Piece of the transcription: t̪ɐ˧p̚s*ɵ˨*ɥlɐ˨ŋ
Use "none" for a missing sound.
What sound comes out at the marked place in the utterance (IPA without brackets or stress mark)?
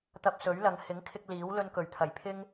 ɵ˨˥